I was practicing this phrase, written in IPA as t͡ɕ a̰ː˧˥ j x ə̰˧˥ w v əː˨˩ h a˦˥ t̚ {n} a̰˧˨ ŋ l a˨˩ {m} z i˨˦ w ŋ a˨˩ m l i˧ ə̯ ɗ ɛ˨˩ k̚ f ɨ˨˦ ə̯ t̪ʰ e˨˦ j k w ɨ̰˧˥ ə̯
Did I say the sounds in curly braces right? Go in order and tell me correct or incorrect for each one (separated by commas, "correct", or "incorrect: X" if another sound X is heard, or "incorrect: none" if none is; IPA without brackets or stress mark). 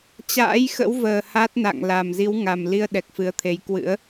correct, correct